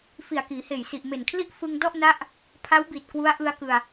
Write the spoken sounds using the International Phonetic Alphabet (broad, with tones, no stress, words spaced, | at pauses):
fi˨˩a̯kiː˩˦heː˨˩jsi˨˩ʔ me˨˩nkʰli˥˩ʔ fɯ˧ŋ dɔ˥˩ʔna˦˥ʔ | pʰa˦˥wbi˨˩t̚ kwu˦˥a̯ʔɯ˧a̯kɯ˧a̯